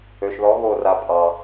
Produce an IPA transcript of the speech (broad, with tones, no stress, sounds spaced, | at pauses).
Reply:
ø˨ ʃ ð ɔ˨˦ ɣ o˦˨ r a˧ pʼ ɑ˨